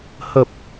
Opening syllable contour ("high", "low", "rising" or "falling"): low